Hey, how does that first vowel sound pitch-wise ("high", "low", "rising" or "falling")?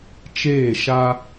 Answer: falling